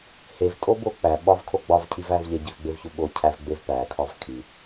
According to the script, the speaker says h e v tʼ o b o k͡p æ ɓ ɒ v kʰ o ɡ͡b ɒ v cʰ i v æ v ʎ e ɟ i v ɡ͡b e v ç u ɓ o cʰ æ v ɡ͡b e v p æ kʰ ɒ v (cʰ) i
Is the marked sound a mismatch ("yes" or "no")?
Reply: yes